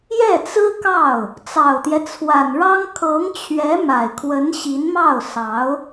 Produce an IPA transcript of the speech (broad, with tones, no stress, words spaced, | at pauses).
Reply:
jɛ˥˩t͡sɹ̩˥kɑ˥˩ʊ̯ | t͡sɑ˨˩ʊ̯t̪jɛ˦t͡sʰwa˨˩nɻɑ˥ŋ kʰɤ˧˥ŋt͡ɕʰɥɛ˧˥ ma˨˩ɪ̯kʰwə˧˥nɕi˧˥n mɑ˥˩ʊ̯ sɑ˧˥ʊ̯